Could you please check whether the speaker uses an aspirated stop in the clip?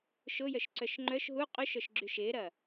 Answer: no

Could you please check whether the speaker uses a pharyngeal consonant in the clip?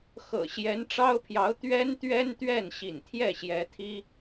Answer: no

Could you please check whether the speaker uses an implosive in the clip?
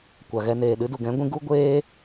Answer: yes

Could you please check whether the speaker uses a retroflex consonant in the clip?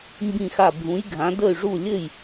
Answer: yes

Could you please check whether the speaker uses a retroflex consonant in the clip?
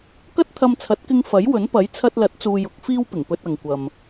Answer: no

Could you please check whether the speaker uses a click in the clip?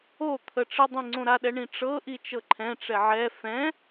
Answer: yes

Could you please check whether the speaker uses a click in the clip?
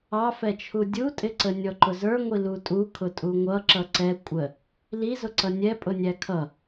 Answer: yes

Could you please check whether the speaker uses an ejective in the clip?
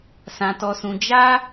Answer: no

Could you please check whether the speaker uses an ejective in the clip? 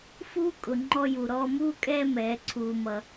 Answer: yes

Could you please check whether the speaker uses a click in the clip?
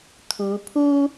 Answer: no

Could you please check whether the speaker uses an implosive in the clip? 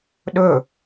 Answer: yes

